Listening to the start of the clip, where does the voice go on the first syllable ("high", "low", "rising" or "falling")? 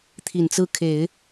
low